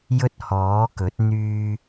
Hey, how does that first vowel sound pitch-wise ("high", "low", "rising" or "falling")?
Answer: high